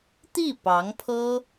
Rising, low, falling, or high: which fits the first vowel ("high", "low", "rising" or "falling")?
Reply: falling